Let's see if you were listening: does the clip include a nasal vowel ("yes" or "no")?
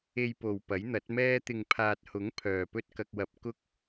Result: no